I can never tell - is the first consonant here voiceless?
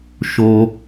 yes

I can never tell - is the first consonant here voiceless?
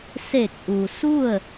yes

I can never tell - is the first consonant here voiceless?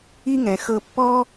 no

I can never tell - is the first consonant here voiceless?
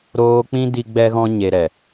no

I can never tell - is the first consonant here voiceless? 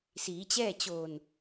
yes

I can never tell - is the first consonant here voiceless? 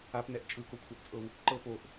yes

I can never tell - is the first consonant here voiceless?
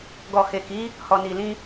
no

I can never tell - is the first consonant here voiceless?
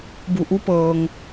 no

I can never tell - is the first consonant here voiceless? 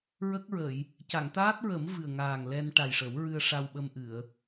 no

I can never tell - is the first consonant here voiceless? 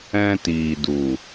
yes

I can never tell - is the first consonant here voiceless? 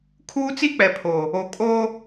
yes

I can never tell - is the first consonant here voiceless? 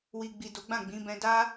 no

